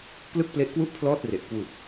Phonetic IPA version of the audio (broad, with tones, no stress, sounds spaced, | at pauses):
k l ɯ˥˩ k̚ p l e˦˥ ʔ k w u˥˩ ʔ pʰ l ɔː˥˩ t̚ r e˨˩ ʔ k w u˨˩ k̚